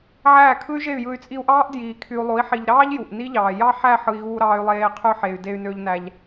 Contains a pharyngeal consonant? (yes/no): yes